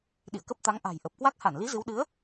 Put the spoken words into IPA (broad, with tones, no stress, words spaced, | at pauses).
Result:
ɗḭ˧˨ə̯kə˦˥p̚ t̪a˨˦ŋʔa̤˨˩j ʔə˨˩p̚kwa˦˥k̚ ha˧˩nli˨˦ zɨ˨˦w ɗɨ˨˦ə̯